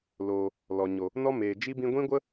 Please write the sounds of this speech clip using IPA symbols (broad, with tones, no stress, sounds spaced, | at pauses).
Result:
l oː˨ | l ɔ˨ ɲ o˨ | n ɔ˦ m eː˨ d͡ʒ i˦ b ĩ˧ ɡʷ ĩ˦ ɡʷ ə˦